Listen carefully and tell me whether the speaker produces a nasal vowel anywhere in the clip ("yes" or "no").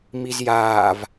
no